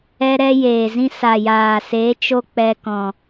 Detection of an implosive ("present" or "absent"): absent